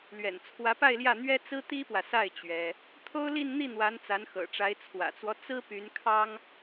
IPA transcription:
l ɥ ɛ̰˨˩ n t͡sʰ w ä˧˥ p a˥˧ ɪ̯ l j ä˥˩ n̪ ɥ ɛ˥ t͡s ɹ̩˥ t̪ i˥ p w ä˨ s a˥˩ ɪ̯ t͡ɕ ɥ ɛ˥ | t̪ʰ o˥ ʊ̯ l i˥˧ n n̪ i˥˩ n̪ w a˧˥ n t͡s a˧˥ n x ɤ̰˨˩ ʈ͡ʂ a˧˥ ɪ̯ t͡sʰ w ä̰˨˩ t͡s w ɔ˦ t͡s ɹ̩˥ p y˧˥ n kʰ ɑ˥ ŋ

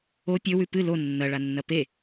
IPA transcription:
o pʲ ɵ w ʉ p ɨ l o nː ɐ ɭ a nː ɐ p e

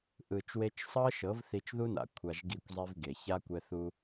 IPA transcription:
ʔ ɯ˨ t͡ʃ w e˧ t͡ʃ sˤ ɤ˦ ʃ ɤ˨˦ v θ i˧ t͡ʃ ð u˦ n a̰˨ kʷʰ a˧ ʒ ɡ i˦˨ kʷ zˤ i˦ v ɡ e˨ ç a˦ kʷ ɛ˧ θ u˧

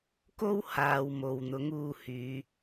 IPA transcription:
k o˥ w h aː˨ w m o˨ w n̪ ʊ˨˥ ŋ uː˧ h yː˨˧

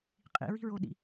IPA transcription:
qʼ ḭ ɹ i̤ ɹ o ɗ ḭ

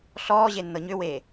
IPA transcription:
ɬ ɔː ʑ e nː ɤ ɲ ʏ w eː

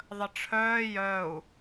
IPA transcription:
ðˤ ə ʈ͡ʂʰ œː j œ u̯

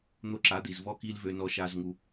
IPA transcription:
n̪ o˦ ǁ a˨˦ d̪ i˨ z v ɔ˦ k i˦ l v ø˦ n ɔ˦ ʃ a˦ z ŋ u˦

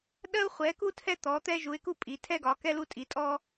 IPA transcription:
ɗ ɜ˥ ʊ̯ χʷ ɛ˨˦ k u˥ tʰ ɛ˥ t̪ ɔ˨˦ t̪ ɛ˥ ʒ u˨˦ ɪ̯ k u˥ pʼ i˨˦ tʰ ɛ˥ ɡ ɒ˨˦ k ɛ˥ l u˥ tʼ i˨˦ tʼ ɔ˥

